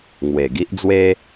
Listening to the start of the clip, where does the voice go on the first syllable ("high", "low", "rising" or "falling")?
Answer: low